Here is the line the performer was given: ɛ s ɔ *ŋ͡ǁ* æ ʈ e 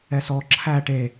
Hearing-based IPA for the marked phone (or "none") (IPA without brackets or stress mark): ǁʰ